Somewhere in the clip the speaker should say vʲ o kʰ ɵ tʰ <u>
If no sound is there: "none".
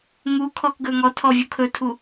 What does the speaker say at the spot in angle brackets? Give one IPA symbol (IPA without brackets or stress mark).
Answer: u